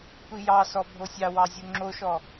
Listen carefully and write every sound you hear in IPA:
tʷ i j ɑ s ɔ bʱ o sʲ ɑ w ɑ zʲ o ŋ͡ǁ o ʃ ɔ

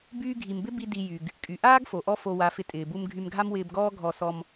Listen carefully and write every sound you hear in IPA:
b yː˧ ɡʱ i˨ m b ɪ˦ b i˦ d i˧ j y˨ ɡ | kʼ y˨ ʔ aː˦ ɡ f o˨ ʔ ɔ˦ f o˧ w a˨˦ f ɪ˧ tʼ ɪː˨ b u˧ m ɡʱ y˧ m ɡʱ a˦ m w ɪː˧ b ɡ ɔː˦ ɡʱ ɔ˧ s ɔ˧ m

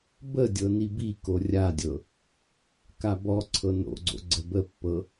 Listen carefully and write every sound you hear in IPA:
b ə dʲ ɤ n i b i k o rʲ a dʲ ɤ | k a b ɔ ǀʰ ɤ n o̰ ɡ͡ǀ o̰ ɡ͡ǀ ə b ə pː ɤ

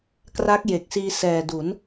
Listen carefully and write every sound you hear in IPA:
k r a˦˥ k̚ j e˨˩ k̚ s iː˧ s ɛː˨˩ d u˩˦ n

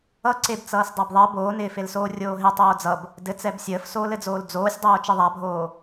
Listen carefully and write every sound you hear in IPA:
ʌ ǀ e b t͡s ʌː s dˤ a b ðˤ ɜ b oː n ɪː f e l s oː rʲ oː ɦ ɪ tˤ oː d͡z ʌ b | d ɘ t͡s ɛ b sʲ əː f s oː l ɘ d͡z oː l d͡z oː sʲ dˤ oː t͡ʃ ɘ ðˤ a bʱ oː

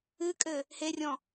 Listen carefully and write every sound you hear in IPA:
ɨ kʼ ɘ | h e rʲ ɔ̃

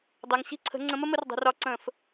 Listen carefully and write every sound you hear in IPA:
dˤ ɜ˩˧ ŋ ɕ i̤˥˨ ǀʰ ə̤˨˥ ŋ͡ǀ ə̃˨˥ m ə˥ m ə˨˥ r dˤ ə̤˩˧ r ɒ˨˥ ǀ ə̃ː˧˩˧ f

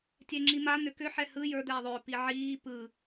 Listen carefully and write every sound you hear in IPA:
tʲ ɛ ŋ͡ǁ i m a n̪ ʏ k ʏ ħ ɛ h ɯ j ə˞ d̪ ɛː ðˤ ʏː p i ʕ iː p ɯ

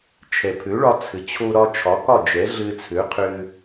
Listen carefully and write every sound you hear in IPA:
t͡ʃʰ ɛ˩ pʰ ø˩˥ ɭ ɒ˧ t͡sʰ ɘ˩ t͡ɕʰ o˧ ɾ ɒ˧ t͡ʃʰ ɒ˩˥ k ɒ˥˩ d͡ʒ ɛ˩˥ ɮ ɘ˧ t͡sʰ ø˩˥ qʰ ʏ˧

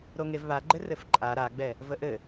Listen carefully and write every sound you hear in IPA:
ɾ o ŋ e v β a ɡ͡ǃ ɘ r ɘ f ǃʼ a ɾ a ɡ͡b ɛ | v ə ʔ ɘ

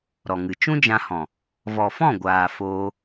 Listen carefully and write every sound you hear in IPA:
ɾ ɔ˨ ŋ ɨ˨ t͡ʃ ũ˦ d͡ʒ ã˧ h ɔ̃˨ | v ɔ˨ f ɔ̃˦˨ ɡʷ aː˨ f oː˧

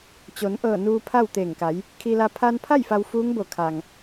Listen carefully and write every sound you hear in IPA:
t͡ɕ o˩˧ n ʔ ɤː˧˩ n uː˧ pʰ a˥˨ w t̪ eː˧˩ ŋ k a˩˧ j | kʰ i˧ l a˧ pʰ a˧ n pʰ a˥˨ j f a˧ w f uː˧˥ ŋ b o˧˩ kʰ a˩ ŋ

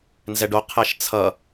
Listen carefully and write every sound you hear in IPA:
n z ɛ ɖ o qʰ ɛ ʃ t͡sʰ ʌ

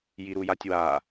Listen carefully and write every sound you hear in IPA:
j i ɾ u j a tʲ w a

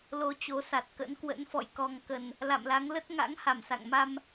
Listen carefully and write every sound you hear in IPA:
l o˧ t͡ɕ o˨˦ s a˨˩ t̚ k ə̰˧˥ n k w ə̰˧˥ n f ɔ̰˧˨ j k ɔ˨˩ ŋ k ə˨˩ n | l a̰˧˨ m l a˨˦ ŋ l ə˦˥ t̚ ŋ a̰˧˥ ŋ h a˧˩ m s a̰˧˨ ŋ m a˧ m

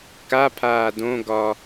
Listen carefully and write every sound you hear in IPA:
k a pʰ aː d õ ɡ ɒː

